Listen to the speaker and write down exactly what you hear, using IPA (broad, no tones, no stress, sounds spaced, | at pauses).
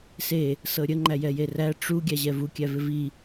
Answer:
s e | s ɤ ɾʲ ə ŋ͡ǃ æ j ɛ j e r æ ʈ͡ʂ u ɡʲ æ ʑ ɛ v u kʲ æ v ɪ v i